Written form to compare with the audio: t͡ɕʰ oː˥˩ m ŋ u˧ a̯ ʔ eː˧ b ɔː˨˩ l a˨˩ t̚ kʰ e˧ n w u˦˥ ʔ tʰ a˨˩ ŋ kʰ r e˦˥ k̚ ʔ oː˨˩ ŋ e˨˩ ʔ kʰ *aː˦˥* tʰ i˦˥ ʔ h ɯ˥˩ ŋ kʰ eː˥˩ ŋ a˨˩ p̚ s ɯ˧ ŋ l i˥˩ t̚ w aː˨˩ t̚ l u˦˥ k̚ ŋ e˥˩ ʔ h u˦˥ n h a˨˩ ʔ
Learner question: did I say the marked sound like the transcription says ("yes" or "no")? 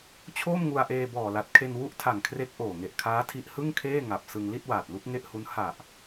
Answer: yes